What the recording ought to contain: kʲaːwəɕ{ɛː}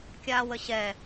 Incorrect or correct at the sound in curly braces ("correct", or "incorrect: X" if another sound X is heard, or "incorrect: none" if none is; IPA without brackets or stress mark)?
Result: incorrect: ɛ